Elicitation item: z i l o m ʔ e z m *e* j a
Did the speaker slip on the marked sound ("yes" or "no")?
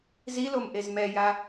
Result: yes